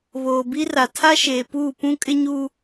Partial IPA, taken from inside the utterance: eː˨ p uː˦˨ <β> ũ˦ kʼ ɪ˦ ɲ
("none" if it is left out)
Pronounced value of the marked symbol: p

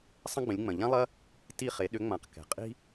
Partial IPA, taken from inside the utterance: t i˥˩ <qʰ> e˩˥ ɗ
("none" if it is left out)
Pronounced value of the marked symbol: χ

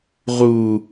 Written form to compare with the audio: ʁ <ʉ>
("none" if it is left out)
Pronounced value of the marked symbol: u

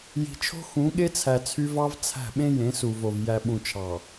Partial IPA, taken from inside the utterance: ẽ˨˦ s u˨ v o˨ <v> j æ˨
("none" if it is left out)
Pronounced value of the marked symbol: v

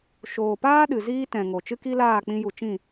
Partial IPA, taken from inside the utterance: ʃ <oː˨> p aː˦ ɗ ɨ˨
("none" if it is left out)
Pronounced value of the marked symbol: oː˨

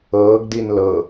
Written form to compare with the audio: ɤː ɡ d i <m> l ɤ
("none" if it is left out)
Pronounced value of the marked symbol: n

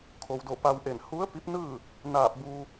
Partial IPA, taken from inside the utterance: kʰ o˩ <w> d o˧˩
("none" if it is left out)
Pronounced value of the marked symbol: w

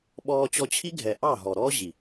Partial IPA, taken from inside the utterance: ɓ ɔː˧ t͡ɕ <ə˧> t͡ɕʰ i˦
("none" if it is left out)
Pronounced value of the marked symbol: ɔ˧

